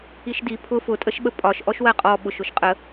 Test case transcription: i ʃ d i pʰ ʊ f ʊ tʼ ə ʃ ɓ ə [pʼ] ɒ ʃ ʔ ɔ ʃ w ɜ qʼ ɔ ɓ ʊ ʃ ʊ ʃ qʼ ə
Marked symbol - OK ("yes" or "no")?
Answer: yes